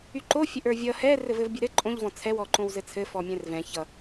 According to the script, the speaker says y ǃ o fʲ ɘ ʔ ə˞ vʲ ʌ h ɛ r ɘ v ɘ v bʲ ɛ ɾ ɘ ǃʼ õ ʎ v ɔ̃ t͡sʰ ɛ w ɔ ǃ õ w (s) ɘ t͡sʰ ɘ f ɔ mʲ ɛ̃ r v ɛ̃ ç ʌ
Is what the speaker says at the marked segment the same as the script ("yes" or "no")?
no